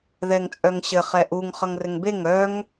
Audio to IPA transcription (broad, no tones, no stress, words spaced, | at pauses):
ðɛŋt͡sʼœŋɕɘ χɛʔuŋ χʌŋrɘŋbeŋ œŋ